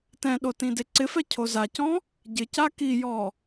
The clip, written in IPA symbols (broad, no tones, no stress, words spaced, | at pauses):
tɛ̃ɗo tĩdeǀɪfɛ cʰozacɔ̃ | ɟɪca kijɔ